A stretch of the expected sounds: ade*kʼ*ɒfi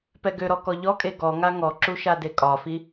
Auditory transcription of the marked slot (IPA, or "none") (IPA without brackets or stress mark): kʼ